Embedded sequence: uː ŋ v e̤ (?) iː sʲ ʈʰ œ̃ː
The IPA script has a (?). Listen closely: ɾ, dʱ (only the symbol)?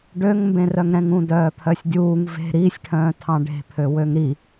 ɾ